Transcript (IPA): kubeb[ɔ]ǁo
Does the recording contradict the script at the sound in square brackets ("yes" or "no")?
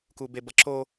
yes